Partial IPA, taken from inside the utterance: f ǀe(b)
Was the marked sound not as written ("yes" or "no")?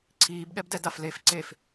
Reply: yes